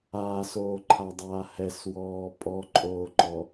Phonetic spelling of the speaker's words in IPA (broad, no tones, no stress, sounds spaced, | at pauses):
aː s oː ǃʰ a dˤ aː h ɛ s w ɔː pʼ ɔ ǃʼ oː ǃ ɔ